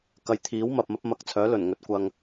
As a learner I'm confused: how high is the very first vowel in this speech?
low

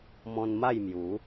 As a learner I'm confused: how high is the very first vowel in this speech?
mid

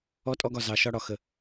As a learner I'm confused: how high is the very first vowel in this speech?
mid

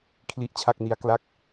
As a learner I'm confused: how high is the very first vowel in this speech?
high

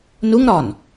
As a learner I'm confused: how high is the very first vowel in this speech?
high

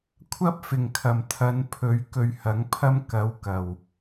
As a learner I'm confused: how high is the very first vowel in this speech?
low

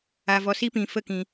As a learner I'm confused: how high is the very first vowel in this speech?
low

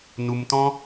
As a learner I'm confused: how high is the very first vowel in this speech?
high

